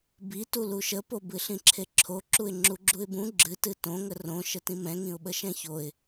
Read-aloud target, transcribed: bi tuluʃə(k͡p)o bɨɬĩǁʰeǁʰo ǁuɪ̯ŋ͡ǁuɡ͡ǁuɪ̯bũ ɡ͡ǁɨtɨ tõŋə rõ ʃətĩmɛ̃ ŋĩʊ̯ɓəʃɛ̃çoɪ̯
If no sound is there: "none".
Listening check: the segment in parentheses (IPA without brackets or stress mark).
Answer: p